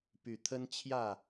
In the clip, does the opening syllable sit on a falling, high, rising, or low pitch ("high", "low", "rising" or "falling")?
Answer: low